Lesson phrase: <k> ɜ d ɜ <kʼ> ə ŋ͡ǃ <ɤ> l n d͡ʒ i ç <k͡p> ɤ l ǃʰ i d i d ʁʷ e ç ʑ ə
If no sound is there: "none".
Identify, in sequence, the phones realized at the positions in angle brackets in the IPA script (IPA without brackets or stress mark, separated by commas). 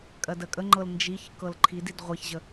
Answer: kʼ, kʼ, ɤ, k